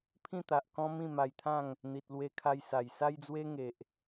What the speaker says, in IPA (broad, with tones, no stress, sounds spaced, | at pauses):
pʰ ĩ˥˧ t̪ a˨ ʔ k ɔ̃˦ m ĩ˥˧ m a˧ j t̪ʰ ã˥˧ ŋ | n̪ i˨ t̚ l w e˧ kʰ a˧ j s a˨˩ j s a˦ j d͡z w e˦ ŋ e˨ ʔ